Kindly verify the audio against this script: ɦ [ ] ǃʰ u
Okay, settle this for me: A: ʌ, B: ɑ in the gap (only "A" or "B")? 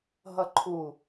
A